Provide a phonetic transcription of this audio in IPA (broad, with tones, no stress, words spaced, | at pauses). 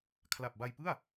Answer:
kʰla˨˩p̚ba˧jpɯ˥˩a̯